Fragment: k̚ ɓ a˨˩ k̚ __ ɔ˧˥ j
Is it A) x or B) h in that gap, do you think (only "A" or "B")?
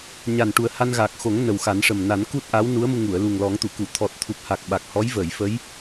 B